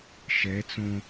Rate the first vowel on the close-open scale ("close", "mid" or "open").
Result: mid